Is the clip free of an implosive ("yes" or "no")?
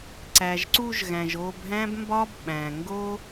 no